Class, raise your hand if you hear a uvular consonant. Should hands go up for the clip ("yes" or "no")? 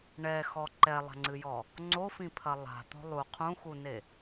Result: yes